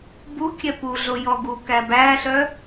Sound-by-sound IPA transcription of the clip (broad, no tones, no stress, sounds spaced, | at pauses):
b u kʲ ɛ p u ɮ o j ɔ ɡ u k æ b æ ɬ œ